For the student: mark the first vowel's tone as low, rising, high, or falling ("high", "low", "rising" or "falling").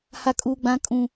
high